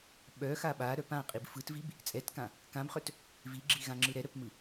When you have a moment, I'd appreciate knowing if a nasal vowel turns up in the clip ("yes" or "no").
yes